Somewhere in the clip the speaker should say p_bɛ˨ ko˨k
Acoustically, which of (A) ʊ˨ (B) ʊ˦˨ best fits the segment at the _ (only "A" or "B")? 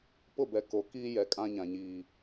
B